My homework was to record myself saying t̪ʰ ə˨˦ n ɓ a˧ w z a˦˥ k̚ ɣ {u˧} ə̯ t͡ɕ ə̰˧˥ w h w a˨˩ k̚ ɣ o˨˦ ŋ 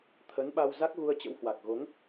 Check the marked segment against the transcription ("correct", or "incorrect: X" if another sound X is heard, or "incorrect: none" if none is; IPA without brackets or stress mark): correct